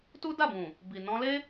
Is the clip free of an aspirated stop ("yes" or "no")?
yes